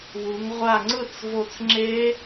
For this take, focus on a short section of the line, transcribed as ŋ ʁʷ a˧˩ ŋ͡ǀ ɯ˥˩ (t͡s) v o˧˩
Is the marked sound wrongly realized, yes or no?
no